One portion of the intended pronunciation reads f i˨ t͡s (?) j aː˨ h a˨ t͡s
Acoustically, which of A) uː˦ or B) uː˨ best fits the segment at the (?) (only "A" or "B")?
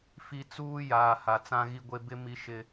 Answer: A